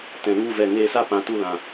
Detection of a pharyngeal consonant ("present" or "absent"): absent